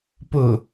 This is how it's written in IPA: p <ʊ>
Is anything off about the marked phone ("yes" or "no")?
no